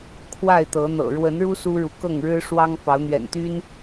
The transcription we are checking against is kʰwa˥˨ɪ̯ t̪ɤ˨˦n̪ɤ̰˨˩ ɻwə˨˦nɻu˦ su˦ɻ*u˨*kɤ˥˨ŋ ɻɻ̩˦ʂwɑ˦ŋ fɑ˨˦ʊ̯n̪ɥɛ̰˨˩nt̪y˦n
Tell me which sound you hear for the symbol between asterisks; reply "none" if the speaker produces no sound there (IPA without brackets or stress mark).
u˨